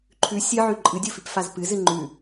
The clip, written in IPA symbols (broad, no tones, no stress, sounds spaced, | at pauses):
ǃʰ ʉ sʲ ɨ ʕ ʉ ǃʼ ɨ dʲ o f i p f a z p ɨ z ɨ ŋ͡ǃ ʉ